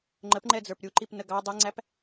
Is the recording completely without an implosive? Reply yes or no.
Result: yes